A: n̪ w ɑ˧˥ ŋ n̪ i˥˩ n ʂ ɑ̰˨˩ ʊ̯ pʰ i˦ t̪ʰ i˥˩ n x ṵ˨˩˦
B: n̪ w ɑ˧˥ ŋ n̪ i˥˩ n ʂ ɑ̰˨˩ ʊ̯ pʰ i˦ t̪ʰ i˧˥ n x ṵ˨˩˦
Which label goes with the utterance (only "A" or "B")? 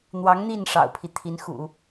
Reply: B